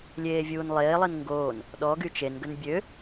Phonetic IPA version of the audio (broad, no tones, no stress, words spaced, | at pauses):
lʲeːvʲuːnlˠeːlˠin ŋɡoːn | ɗɔɡy t͡ʃenɡən bʲø